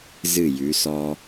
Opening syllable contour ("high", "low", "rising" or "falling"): falling